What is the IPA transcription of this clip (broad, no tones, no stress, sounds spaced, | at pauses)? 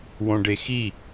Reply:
w õ ɖ e x i